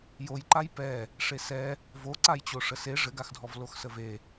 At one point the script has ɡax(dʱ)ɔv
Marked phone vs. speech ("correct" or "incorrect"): correct